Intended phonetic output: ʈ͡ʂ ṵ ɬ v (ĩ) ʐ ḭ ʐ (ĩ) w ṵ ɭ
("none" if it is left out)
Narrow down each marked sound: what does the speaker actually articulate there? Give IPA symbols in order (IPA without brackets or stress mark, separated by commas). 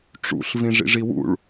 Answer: ĩ, i